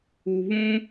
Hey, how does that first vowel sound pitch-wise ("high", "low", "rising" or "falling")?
low